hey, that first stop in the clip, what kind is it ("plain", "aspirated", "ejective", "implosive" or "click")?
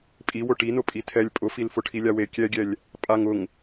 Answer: ejective